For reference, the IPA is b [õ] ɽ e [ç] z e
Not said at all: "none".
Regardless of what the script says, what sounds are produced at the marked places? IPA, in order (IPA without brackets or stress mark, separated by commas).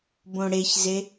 õ, ç